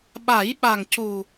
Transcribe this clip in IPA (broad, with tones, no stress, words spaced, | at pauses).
ɓa˨˩˦jɓa˨˩ŋcu˨˩